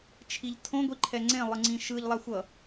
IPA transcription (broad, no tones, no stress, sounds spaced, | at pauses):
t͡ʃʰ i ʎ tʰ õ ɡʷ i ǃʰ ɛ ŋ͡ǀ ẽ lˠ ɯ ŋ͡ǀ ĩ ʃ ɯ ʎ lˠ a xʷ ʌ